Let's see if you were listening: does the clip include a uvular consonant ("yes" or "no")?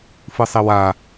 no